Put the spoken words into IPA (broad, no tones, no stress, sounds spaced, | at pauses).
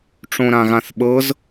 ʈ͡ʂ õ ɾ ã ɣ ã θ ɓ ɤ z